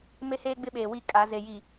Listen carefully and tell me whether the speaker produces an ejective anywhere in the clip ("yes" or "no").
yes